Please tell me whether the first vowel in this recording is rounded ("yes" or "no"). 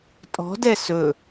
yes